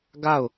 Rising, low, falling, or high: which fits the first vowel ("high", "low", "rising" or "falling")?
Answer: falling